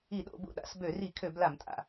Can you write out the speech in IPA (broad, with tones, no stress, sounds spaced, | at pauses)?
i˧˩˧ ɗ o̰˧˩˧ b ṵ˧˩ ɗ a̰˧˩˧ s b ø˧˩˧ r i˧˩˧ kʰ ø˧˩˧ b l a˧˩˧ m tʼ a̰˧˩